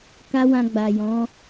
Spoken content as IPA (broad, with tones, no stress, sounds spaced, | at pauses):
k a˦ w ã˧ ɡ͡b a˨ j ɔ̃˨˦